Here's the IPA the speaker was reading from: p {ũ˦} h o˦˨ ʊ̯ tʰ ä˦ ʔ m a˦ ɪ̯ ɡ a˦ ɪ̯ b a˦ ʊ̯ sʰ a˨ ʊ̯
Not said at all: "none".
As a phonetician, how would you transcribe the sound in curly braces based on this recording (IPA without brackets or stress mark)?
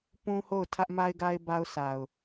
ũ˦